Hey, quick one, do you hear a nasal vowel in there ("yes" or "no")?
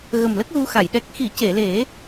no